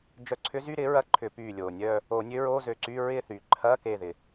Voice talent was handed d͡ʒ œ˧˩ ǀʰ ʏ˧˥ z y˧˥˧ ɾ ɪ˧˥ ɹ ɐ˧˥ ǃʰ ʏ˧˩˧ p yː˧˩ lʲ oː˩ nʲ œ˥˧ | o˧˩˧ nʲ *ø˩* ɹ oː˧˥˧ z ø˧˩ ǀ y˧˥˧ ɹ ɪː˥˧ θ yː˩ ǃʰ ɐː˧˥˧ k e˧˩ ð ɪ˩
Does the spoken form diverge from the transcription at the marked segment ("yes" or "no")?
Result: yes